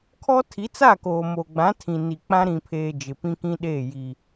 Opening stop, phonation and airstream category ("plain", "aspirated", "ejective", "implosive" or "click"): aspirated